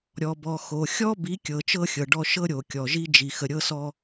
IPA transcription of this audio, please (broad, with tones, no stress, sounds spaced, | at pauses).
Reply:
ɾʲ ɔ˨ b ɔ˨ x o˨ xʲ ɔ˦ b i˨˦ kʲ ɤ˨ t͡ʃ ɤ˦ xʲ ɤ˨ ɖ ɔ˦ ʃ ɤ˦ ɾʲ o˨ kʲ ɔ˨ ʒ i˦ d͡ʒ i˨ x ə˨ ɾʲ ɤ˦ s ɔ˦